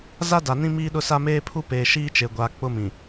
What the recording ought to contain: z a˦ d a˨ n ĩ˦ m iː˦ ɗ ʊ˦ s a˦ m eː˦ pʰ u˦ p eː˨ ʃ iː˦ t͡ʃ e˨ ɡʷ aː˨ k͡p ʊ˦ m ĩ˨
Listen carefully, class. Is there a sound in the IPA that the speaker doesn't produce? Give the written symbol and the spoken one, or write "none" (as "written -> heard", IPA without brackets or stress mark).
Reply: none